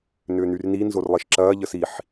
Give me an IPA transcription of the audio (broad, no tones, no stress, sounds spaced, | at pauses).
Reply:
n ʏː n y r n i n z o r lˠ i ʃ ǁ ɐː ʎ ə s i ħ